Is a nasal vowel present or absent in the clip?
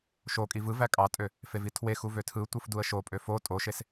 absent